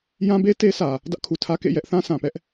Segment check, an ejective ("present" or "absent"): absent